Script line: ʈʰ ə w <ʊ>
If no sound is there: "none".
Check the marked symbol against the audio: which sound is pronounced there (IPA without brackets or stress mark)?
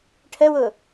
ʊ